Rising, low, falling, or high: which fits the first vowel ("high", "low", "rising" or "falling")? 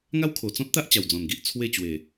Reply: high